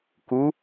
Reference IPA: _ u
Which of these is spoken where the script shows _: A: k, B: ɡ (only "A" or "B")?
A